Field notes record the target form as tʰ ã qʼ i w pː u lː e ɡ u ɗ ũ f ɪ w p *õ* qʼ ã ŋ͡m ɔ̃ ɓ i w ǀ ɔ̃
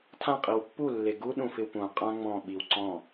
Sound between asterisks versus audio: incorrect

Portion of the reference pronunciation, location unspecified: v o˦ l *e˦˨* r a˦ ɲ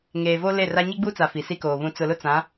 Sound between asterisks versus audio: correct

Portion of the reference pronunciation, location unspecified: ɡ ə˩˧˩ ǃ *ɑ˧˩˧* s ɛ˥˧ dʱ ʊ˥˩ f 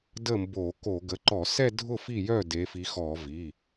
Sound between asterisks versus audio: incorrect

